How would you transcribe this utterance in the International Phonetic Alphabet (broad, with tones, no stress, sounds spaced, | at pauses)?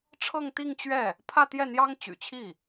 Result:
ʈ͡ʂʰ ɤ˥˧ ŋ t̪ i˥˧ ŋ t͡ɕ ɥ ɛ˥˩ | pʰ ä˥˧ t̪ j ɛ˥˩ n̪ j ɑ˥ ŋ t͡ɕ y̰˨˩ t͡ɕʰ i˥˩